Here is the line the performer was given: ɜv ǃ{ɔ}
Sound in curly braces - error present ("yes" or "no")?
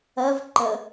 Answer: yes